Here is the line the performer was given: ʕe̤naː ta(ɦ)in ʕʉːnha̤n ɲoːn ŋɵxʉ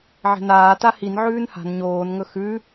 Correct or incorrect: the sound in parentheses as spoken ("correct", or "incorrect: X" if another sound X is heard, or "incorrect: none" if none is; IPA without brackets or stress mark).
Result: incorrect: h